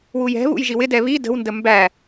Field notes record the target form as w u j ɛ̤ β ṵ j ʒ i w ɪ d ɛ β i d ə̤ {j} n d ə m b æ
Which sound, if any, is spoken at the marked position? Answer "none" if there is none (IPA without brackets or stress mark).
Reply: w